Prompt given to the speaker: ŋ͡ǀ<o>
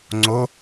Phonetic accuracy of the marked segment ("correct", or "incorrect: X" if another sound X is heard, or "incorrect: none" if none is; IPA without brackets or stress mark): correct